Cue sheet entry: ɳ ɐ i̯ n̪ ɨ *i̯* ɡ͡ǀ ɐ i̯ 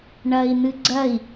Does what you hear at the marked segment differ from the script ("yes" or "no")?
yes